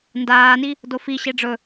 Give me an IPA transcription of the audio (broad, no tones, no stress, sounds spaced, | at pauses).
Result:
n d aː n i | d o f i ɕ e ɖ͡ʐ ɵ